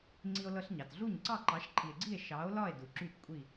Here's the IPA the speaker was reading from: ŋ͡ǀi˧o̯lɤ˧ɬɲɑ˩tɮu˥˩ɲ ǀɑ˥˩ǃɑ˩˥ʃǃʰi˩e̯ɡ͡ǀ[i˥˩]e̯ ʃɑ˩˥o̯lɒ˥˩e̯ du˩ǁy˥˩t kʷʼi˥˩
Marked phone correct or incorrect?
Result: correct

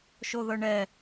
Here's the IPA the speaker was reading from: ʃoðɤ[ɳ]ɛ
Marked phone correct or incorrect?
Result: correct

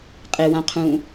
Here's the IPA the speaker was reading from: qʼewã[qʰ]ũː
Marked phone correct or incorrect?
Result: correct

